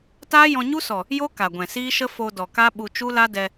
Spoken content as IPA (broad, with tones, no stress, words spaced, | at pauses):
taː˦jɔ̃˧ɲu˦sɔ˨ | jo˦ ka˨ɡʷɛ̃˨ siː˦ʃə˦ fo˧dɔ˨ ka˦ɓu˧t͡ʃu˦la˦ dɛ˧